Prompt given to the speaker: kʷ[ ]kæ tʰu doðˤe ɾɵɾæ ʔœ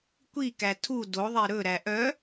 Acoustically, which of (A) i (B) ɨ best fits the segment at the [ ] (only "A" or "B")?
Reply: A